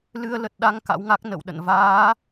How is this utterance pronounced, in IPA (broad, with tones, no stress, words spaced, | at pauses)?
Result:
lɨ˧ə̯lə˨˩t̚ ɗa˧ŋ ka̰˧˥wŋa˦˥k̚ nə̰˧˨wɗə̰˧˨n vaː˨˦